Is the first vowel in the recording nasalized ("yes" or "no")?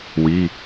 no